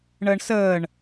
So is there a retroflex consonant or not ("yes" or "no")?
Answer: yes